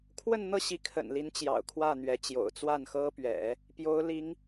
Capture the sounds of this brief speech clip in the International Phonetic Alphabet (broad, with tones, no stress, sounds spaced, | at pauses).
kʰ w ə˥˧ n n̪ ɤ˥˩ ɕ i˧˥ kʰ ə̰˨˩ n l i˧˥ n t͡ɕ j ɑ̰˨˩ ʊ̯ kʰ w ä˥˩ n̪ ɥ ɛ˧˥ t͡ɕ j o̰˨˩ ʊ̯ t͡s w a˥˩ n x ɤ˥ p ɥ ɛ̰˨˩˦ | p j o˧˥ ʊ̯ l i˧˥ ŋ